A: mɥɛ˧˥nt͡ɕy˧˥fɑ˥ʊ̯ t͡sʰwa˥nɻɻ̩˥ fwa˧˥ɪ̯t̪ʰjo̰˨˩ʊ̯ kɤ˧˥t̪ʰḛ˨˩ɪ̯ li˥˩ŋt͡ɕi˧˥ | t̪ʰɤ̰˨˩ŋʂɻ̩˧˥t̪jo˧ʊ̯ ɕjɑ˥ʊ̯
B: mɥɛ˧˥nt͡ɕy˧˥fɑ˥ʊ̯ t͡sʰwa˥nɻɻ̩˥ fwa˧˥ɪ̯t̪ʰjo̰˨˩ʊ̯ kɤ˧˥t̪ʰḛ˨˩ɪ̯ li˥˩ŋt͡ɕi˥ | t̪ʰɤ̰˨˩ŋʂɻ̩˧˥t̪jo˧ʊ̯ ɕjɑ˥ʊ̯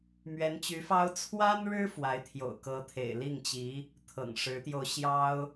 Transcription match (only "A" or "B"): A